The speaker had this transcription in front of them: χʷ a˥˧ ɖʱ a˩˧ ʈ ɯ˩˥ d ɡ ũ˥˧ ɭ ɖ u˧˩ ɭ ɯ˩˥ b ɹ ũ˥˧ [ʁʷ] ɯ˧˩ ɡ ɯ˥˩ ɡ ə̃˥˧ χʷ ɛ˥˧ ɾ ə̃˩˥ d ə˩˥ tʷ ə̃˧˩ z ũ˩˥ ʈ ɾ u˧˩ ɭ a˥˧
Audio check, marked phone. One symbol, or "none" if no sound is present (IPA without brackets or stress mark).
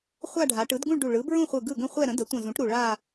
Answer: χʷ